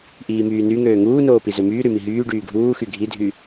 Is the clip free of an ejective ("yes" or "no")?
yes